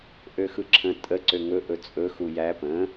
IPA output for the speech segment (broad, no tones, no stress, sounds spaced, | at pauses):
ʔ ø x ɯ ǁʰ ə̃ tʼ ə ǀ ø ŋ ɵ ʔ ɵ t͡sʼ ɵ x u j æ p ə̃